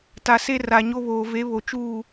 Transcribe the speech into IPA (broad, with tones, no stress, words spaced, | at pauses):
ta˨ se˦ra˨ɲo˦βoː˨ ve˨˦βo˨t͡ʃuː˦˨